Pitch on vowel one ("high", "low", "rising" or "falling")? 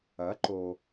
rising